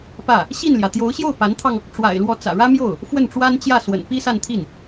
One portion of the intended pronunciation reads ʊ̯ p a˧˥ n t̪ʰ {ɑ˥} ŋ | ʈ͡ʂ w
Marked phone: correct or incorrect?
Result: incorrect